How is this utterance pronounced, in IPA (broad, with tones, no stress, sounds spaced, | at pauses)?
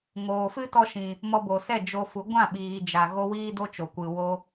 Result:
ŋ oː˨ f ɨ˦ t ɔ˧ ʃ ĩ˨ | m ɔ˧ b o˨ s ɛ˦˨ d͡ʒ o˧ f u˨˦ ɡʷ ã˦˨ ɓ iː˨ d͡ʒ a˨ ɣ o˦ w iː˦ d o˦ t͡ʃ o˨ kʷ ɨ˨ w o˧